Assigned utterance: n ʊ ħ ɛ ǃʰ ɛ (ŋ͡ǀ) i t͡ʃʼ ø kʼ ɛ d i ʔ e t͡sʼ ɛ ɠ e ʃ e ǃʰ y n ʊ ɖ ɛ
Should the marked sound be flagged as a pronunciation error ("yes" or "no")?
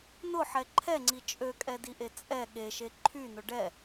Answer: no